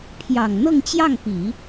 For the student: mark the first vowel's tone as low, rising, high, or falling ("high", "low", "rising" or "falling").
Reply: low